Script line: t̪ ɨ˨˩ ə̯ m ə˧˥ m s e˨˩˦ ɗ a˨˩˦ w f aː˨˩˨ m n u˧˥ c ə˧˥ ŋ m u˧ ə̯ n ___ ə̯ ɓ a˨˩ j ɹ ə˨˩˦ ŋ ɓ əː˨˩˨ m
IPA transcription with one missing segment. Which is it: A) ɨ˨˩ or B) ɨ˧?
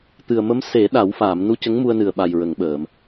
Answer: A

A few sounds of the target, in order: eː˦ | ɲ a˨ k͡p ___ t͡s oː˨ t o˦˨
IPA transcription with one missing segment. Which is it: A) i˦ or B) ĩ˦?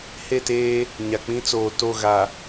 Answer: B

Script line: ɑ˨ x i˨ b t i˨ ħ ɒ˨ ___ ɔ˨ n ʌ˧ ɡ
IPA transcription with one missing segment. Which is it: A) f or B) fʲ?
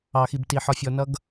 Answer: B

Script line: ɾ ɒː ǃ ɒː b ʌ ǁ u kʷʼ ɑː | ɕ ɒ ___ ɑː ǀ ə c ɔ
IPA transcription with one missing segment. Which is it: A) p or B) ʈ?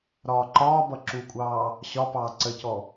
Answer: A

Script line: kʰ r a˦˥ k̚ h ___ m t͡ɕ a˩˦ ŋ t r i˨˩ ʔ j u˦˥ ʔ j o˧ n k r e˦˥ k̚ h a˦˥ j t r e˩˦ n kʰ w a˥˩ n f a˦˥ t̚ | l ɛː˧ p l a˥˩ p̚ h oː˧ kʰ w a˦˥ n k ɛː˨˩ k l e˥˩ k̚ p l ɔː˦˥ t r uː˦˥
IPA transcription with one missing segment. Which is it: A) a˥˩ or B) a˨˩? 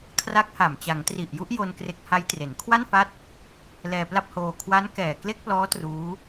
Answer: B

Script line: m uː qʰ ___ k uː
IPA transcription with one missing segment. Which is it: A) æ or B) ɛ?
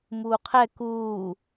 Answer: B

